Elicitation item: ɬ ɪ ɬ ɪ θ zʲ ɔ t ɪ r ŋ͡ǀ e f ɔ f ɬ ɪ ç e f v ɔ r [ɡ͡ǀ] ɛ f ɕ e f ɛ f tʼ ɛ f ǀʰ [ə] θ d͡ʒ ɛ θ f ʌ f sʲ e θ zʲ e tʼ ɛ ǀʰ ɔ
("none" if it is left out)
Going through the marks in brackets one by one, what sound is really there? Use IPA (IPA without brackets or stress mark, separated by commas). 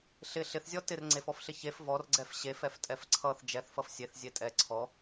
ɡ͡ǀ, ʌ